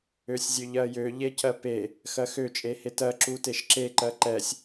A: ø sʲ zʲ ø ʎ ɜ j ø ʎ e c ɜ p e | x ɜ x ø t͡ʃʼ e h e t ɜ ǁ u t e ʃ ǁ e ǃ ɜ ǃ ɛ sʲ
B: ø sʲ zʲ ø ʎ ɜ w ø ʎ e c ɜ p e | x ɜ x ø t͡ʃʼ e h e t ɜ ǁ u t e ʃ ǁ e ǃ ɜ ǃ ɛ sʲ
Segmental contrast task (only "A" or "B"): A